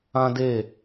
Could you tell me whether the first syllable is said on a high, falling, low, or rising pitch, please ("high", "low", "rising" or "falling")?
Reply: high